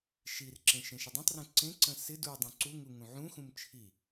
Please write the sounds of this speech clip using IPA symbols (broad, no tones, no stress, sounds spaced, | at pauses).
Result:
ʃ i r ǁ ẽ ʃ ẽ ʃ ɪ dˤ ĩ tˤ r ũ ǀ ẽ ǀ ə̃ s ɪ d u dˤ ũ ǀ u ŋ u ŋ ũ ʕ ũ x ũ m t͡ʃʰ i